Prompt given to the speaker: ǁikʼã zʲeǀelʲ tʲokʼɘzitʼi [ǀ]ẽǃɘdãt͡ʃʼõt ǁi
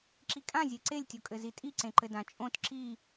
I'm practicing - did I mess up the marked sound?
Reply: no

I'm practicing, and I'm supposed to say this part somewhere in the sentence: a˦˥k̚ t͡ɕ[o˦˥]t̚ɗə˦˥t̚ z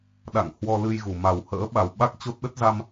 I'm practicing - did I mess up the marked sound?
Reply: no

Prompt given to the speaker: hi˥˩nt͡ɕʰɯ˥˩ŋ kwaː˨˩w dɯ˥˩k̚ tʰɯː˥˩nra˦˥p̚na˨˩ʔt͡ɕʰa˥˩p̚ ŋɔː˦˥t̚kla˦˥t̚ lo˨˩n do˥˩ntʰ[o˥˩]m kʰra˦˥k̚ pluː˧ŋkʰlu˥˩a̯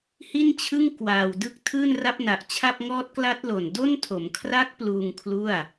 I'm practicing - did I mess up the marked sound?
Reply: yes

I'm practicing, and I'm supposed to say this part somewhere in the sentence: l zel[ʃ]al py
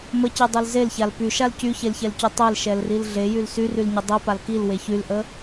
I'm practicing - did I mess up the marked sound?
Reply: yes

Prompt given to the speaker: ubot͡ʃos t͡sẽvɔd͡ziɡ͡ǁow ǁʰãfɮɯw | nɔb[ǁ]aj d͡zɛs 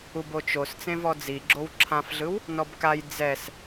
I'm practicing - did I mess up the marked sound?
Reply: yes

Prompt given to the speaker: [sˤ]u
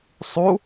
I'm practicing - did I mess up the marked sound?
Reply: no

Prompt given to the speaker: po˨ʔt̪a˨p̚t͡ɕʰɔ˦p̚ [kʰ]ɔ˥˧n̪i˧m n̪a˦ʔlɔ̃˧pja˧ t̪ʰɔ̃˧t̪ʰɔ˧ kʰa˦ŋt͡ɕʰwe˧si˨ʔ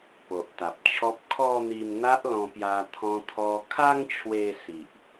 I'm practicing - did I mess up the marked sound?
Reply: no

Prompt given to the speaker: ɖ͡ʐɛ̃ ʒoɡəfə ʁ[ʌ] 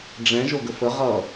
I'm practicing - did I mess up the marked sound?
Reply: no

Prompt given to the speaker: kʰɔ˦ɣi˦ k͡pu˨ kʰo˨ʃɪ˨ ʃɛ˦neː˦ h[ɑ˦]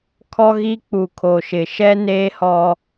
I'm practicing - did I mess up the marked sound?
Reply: yes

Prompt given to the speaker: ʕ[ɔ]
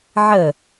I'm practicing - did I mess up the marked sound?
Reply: yes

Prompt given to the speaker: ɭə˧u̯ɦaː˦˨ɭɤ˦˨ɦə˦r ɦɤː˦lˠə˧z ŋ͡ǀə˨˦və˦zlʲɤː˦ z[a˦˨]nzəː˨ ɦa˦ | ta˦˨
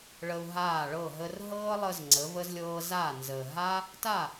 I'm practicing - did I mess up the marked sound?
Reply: no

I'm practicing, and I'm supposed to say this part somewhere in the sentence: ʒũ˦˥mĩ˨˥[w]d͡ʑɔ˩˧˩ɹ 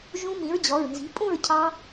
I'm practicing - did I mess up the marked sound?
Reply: yes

